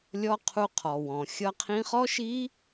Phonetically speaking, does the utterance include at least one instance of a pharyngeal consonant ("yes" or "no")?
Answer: no